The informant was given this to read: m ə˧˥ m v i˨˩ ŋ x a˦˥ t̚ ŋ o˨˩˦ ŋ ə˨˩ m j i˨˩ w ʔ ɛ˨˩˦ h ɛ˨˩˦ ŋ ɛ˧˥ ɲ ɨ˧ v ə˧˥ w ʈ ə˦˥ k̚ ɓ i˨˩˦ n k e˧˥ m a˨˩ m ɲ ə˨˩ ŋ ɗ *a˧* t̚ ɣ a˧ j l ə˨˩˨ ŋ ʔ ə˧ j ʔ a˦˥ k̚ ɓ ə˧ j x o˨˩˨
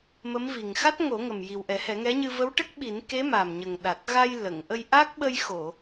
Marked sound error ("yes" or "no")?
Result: yes